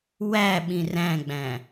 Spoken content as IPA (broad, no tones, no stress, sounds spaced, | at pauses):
w æ ɓ ĩ r æ̃ ɡ͡b æ̃